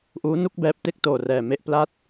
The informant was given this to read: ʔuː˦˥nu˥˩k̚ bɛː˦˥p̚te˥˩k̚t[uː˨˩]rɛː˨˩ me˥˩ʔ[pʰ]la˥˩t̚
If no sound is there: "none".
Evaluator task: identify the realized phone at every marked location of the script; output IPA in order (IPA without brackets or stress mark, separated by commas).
oː˨˩, p